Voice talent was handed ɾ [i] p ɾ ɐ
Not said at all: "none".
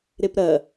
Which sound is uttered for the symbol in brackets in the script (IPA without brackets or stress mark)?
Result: e